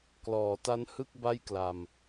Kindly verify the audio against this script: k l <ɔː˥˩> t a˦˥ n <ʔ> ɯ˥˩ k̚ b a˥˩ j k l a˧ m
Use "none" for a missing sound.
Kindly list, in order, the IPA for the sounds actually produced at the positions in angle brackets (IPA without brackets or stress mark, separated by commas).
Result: ɔː˩˦, h